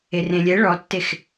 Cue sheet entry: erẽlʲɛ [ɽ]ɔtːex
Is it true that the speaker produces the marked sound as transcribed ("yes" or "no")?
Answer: no